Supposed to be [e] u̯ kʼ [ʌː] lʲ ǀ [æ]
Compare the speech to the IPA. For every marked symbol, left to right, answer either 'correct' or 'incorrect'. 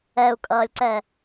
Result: incorrect, correct, incorrect

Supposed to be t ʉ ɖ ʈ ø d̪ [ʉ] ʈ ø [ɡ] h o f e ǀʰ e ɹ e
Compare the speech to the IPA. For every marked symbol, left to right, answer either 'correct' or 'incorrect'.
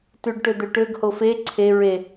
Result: incorrect, correct

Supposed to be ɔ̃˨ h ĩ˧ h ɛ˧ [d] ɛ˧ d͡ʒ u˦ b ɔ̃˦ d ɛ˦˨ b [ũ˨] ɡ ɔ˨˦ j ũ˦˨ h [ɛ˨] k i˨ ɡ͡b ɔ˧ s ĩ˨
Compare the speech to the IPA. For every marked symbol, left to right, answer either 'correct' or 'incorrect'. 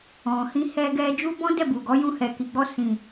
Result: incorrect, incorrect, correct

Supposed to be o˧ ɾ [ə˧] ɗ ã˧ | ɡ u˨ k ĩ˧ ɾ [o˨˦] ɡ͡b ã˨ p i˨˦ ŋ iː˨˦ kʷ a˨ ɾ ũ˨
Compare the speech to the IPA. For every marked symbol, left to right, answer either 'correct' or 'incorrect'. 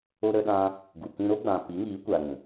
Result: correct, incorrect

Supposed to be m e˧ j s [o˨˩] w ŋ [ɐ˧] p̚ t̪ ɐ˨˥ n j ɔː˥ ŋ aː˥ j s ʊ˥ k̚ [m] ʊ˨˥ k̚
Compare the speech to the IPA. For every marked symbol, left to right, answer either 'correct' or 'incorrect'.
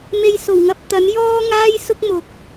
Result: correct, correct, correct

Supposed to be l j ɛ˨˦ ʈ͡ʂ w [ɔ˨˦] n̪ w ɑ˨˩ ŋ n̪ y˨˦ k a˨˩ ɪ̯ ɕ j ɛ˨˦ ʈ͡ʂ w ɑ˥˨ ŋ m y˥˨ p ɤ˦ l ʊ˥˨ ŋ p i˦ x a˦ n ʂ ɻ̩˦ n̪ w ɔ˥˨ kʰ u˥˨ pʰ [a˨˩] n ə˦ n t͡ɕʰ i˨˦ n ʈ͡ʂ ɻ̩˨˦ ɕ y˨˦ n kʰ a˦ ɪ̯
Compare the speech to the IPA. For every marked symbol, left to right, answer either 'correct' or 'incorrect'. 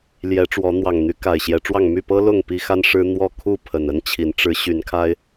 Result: correct, incorrect

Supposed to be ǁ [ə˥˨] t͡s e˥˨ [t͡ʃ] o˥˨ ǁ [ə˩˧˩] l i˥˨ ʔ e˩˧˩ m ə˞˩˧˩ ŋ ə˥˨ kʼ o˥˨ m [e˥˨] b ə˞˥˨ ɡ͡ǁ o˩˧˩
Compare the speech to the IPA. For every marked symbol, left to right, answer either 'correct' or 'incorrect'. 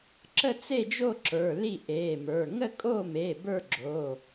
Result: correct, incorrect, incorrect, incorrect

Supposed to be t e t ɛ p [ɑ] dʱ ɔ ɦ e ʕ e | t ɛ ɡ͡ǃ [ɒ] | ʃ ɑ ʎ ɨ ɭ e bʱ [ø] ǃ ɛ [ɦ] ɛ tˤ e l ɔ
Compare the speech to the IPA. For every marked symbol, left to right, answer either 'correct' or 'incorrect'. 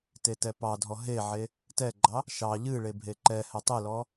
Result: correct, incorrect, incorrect, incorrect

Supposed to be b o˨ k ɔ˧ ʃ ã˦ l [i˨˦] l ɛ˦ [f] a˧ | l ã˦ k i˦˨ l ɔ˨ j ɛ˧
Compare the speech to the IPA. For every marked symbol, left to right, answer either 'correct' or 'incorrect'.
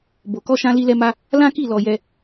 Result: incorrect, incorrect

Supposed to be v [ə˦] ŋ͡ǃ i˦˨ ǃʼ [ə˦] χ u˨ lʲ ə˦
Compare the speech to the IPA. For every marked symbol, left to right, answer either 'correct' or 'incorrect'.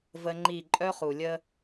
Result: correct, incorrect

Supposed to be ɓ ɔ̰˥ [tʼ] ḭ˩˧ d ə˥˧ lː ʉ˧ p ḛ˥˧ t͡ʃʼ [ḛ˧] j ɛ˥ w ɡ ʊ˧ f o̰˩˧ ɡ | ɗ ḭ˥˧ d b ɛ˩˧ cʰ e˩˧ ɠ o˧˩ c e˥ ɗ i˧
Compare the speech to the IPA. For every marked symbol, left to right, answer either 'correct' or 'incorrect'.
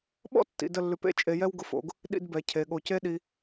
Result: incorrect, incorrect

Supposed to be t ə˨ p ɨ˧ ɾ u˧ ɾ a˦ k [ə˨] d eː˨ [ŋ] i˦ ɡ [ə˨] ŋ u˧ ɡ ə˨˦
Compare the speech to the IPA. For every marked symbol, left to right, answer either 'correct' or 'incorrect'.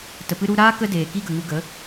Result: incorrect, incorrect, correct

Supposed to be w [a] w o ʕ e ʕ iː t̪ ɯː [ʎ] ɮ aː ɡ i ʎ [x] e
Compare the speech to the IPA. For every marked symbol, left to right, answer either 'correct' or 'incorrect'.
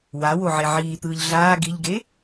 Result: correct, correct, incorrect

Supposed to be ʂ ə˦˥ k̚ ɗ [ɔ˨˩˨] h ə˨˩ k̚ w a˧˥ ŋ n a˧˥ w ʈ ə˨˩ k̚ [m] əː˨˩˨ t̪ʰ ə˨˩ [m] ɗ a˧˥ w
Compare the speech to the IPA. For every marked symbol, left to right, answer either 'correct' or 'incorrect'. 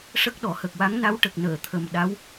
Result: incorrect, incorrect, correct

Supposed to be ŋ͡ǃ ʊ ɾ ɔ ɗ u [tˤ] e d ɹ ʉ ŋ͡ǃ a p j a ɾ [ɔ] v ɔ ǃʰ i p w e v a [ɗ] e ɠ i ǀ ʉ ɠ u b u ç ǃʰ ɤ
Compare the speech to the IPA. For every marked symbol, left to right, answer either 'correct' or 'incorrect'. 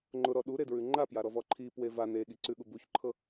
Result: incorrect, correct, incorrect

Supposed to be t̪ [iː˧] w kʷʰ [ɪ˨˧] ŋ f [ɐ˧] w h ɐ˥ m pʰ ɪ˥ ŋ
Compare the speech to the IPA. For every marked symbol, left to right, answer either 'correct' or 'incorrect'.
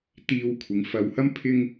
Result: correct, correct, correct

